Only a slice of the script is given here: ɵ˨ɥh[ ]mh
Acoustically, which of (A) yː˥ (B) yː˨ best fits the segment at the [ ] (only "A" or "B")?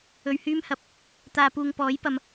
A